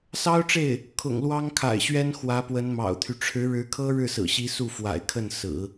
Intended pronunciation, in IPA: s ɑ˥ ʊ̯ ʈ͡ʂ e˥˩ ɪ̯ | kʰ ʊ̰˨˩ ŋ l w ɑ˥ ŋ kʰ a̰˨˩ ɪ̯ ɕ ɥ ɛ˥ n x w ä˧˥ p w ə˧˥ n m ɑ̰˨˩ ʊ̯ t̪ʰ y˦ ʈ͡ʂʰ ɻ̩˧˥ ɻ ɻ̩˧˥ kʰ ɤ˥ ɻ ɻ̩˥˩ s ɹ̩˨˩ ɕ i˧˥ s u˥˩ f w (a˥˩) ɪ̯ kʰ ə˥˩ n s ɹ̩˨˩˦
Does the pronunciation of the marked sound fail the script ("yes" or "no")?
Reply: yes